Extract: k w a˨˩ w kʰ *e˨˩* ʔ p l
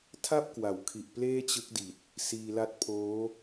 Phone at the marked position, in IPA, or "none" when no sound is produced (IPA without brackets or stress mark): i˨˩